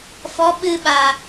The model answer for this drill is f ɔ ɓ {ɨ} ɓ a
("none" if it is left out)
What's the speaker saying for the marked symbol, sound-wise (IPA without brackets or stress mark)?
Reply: ɨ